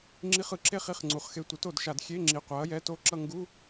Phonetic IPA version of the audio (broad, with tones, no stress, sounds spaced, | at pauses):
ŋ͡ǁ i˧˥˧ χ ɯ˩˥ ǁ e˥˧ χ i˧˥˧ χ ŋ͡ǀ u˩˧ χ x e˧ tʷ ɯ˩˥ t o˧˩˧ d ʃ a˧˩˧ d xʲ e˧˥˧ ŋ͡ǁ i˩˧ qʷ a˩˥ ɐ̯ j ɛ˧˥˧ t o˥˧ ǁ ʌ˥˧ ŋ ɡ u˧˥˧